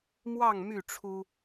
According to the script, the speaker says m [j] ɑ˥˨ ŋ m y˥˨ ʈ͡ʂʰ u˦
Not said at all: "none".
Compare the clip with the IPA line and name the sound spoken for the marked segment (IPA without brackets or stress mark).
w